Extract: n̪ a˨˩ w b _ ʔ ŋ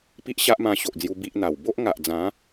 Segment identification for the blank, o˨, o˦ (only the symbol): o˦